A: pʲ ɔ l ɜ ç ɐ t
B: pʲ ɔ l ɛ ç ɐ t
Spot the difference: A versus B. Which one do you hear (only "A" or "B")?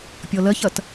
A